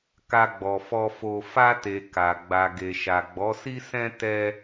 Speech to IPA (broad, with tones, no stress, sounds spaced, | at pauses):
k a˧ ɡ͡b ɔ˨ f ɔ˧ f o˧ f a˧ t e˨ k a˨ ɡ͡b a˨ ɡ e˨ ʃ a˨ ɡ͡b ɔ˨˦ s i˦ s ɛ̃˦ t ɛ˦